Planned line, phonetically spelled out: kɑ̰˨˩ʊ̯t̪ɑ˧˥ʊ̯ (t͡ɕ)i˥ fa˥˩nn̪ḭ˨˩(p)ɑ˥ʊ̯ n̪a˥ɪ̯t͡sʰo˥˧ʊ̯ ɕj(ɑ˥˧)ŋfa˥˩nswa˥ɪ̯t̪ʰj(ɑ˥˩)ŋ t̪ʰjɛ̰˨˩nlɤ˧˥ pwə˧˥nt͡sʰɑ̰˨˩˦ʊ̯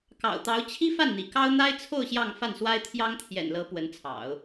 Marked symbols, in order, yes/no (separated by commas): no, no, yes, no